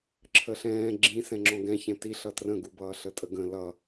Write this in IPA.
ǁʰəɬɛ̃ː ɡ͡ǁĩ sɛ̃ŋ͡ǁɔ̃ɡɛ̃ çɛ̃ti ɬʌtrə̃ɡubʌː ɬətʼəɡə̃ lʌ

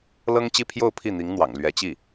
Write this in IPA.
lɤ˥ŋt͡ɕi˥˧pʰjo˥˧ʊ̯ pʰi˥˩n̪i˧˥ŋn̪wɑ̰˨˩ŋ lɥɛ˧˥t͡ɕi˥˩

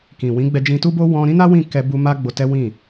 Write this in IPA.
kĩ˨wĩ˨˦ ɡ͡bɛ˧d͡ʒĩ˧tu˦bo˦ wɔ̃˧ɾĩ˦na˦wĩ˦˨ kɛ˧ bu˧ma˦ ɡ͡bo˧tɛ˦wĩ˦˨

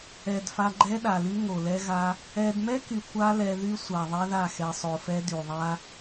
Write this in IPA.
ɛ˨d fa˧ɡ͡ǃɛ˦ɗa˨ly˦ ŋo˨lɛ˦ɣa˦ | ɛ˧d mɛ˦ky˨ kʷa˦lɛ˧ðy˦ sʷa˨ ðˤɛ˦ða˦˨ xɛ˨sˤo˨fɛ˧ dy˨ðˤa˦

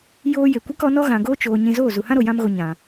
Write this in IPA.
joː˧ je˨kʷɛ˦kɔ˨˦nɔ˦ ɣã˨ɡoː˦ t͡ʃoː˧ ɲĩ˧zoː˦˨ zu˨hã˦ɾo˨ jã˦mɣo˧ ɲã˨

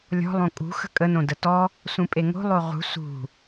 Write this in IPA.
lʲɔ̤ lˠõkʼṳ xə̤kʼə nõdətɔ | sũpʼeŋo̤ lˠoʁṳ sṳ

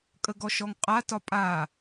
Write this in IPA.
kʼəɡɔʃɔŋqʼa tɒpʼa

